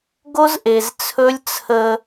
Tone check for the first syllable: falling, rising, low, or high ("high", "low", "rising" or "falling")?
high